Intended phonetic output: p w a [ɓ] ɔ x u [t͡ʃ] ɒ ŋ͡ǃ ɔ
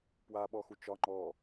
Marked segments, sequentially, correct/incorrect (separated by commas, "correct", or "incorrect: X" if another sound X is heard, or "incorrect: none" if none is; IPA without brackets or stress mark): correct, correct